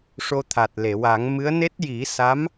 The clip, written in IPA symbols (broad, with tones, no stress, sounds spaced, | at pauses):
ʂ o˧ t̪ʰ a˨˩ t̚ l e˨˩˨ w a˨˩˦ ŋ m ɨ˧˥ ə̯ n e˦˥ t̚ j i˨˩˦ s a˧˥ m